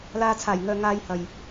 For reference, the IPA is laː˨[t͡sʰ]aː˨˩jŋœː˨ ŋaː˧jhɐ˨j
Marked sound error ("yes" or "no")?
no